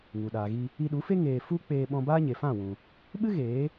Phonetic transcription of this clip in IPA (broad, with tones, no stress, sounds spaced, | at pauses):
ŋ u˨ ɗ aː˨ ɣ i˧ | i˧ ɗ u˨˦ f e˦ ŋ eː˧ f u˦ k͡p eː˧ ɓ ɔ̃˧ b aː˦ ɲ e˨ f ã˦˨ w ũ˨ | ɓ ɨ˦ ɣ eː˨˦